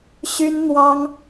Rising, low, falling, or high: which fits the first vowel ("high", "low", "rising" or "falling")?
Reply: high